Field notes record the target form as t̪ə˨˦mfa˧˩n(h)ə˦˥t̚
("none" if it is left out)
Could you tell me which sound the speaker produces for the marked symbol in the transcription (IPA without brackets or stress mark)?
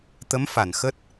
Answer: x